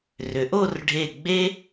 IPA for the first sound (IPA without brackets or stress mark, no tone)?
r